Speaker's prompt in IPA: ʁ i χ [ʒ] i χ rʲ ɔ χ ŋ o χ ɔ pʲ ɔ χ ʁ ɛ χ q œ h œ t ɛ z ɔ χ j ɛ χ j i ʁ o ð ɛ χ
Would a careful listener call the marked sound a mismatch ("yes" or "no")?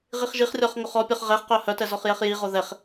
no